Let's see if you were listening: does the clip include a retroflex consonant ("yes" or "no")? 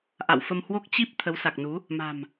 no